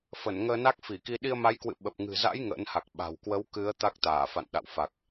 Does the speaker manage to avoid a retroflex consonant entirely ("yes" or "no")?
yes